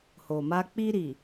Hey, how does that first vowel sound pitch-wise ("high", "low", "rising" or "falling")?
low